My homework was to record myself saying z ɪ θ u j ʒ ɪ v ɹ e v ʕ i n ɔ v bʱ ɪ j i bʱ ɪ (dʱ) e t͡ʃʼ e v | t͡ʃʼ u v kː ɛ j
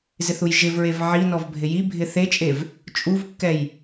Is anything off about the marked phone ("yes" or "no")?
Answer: yes